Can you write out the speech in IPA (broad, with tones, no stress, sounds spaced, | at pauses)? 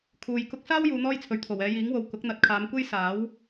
kʰ uː˨ j k ʊ˧ k̚ s aː˥ w j uː˨˧ n̪ ɔː˥ j t͡sʰ ɵ˨˩ ɥ t̪ʰ o˨˩ w ɛː˨˧ j iː˨˥ ŋ w o˨ w k ʊ˨˥ k̚ n̪ ɐ˨ t̚ kʰ aː˨˧ m kʷ e˥ j s aː˨˥ w